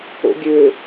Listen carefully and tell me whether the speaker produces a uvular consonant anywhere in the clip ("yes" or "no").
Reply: no